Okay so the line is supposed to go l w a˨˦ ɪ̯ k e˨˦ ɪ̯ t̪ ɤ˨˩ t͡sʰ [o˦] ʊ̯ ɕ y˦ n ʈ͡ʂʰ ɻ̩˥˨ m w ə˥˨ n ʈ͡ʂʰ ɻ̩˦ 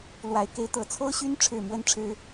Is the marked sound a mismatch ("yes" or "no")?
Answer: no